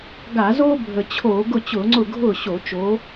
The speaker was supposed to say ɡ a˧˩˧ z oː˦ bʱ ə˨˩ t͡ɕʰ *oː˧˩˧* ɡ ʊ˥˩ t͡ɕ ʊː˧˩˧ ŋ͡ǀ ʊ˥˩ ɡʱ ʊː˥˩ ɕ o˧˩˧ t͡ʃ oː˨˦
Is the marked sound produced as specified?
yes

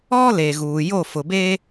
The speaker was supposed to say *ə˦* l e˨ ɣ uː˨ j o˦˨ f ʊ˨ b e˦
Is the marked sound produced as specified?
no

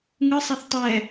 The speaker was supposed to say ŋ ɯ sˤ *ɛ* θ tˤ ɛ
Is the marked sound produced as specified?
yes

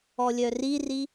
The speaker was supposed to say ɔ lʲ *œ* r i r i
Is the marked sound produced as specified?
yes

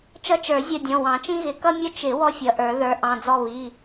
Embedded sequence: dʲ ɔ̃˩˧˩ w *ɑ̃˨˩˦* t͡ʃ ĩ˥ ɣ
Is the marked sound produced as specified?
yes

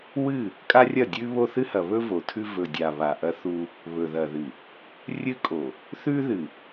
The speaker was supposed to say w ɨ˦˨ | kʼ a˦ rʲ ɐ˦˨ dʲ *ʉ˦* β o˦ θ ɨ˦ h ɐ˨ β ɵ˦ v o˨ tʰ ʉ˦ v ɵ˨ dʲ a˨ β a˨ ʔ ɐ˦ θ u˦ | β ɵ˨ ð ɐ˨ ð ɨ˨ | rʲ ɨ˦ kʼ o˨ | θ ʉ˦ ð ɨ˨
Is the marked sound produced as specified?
yes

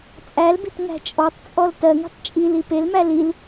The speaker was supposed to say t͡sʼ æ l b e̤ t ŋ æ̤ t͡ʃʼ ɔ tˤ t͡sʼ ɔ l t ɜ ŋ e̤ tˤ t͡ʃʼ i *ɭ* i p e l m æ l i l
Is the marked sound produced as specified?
no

